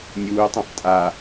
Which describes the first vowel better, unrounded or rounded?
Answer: rounded